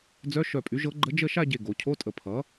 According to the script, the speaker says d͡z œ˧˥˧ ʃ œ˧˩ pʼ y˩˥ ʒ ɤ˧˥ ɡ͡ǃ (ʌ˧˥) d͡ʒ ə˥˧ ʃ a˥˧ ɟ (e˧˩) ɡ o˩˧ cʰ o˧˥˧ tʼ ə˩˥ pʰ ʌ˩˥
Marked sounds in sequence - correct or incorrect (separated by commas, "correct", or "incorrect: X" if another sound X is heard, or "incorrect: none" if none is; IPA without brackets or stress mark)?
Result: incorrect: ə˧˥, correct